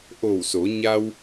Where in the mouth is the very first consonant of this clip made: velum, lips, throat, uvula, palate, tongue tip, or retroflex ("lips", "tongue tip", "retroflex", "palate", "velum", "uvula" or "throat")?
throat